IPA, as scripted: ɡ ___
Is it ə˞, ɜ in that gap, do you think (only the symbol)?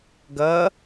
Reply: ɜ